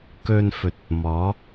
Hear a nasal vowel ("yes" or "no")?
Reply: no